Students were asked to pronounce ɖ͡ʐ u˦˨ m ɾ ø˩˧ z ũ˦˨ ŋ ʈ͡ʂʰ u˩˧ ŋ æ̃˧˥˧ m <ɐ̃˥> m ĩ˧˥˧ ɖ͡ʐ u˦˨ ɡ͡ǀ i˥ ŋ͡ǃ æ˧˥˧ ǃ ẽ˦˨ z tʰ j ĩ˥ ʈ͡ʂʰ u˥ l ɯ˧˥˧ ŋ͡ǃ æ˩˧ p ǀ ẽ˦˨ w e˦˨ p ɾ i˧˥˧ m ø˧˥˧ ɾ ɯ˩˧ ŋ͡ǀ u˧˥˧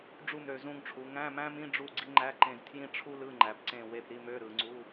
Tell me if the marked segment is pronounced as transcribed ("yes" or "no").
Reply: no